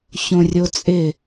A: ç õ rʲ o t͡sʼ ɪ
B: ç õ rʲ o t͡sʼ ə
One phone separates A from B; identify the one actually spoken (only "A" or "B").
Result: A